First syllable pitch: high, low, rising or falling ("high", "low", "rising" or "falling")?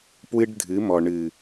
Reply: high